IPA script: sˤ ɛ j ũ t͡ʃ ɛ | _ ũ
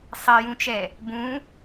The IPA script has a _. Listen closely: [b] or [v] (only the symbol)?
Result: b